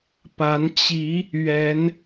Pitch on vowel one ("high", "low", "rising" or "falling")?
rising